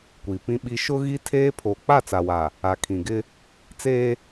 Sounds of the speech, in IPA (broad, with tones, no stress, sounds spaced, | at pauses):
kʷ i˨ p ĩ˦ ɓ i˦ ʃ ʊ˦ ɣ i˦ tʰ eː˦ pʰ oː˨ k͡p a˦˨ t͡s a˨ w a˨ | a˨ kʰ ĩ˨ ɡ ɪ˦ | t͡s eː˦